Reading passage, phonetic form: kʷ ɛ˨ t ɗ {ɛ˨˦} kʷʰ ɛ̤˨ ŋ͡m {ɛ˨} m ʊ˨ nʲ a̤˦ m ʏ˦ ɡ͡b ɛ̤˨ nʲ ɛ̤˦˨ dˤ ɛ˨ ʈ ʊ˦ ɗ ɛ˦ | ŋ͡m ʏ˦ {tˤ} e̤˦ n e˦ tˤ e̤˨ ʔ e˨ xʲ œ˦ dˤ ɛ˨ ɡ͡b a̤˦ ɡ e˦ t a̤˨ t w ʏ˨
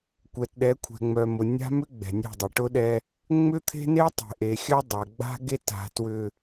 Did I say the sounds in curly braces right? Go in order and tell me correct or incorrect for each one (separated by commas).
correct, incorrect, incorrect